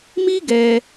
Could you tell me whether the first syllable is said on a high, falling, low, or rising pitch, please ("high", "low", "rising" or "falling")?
high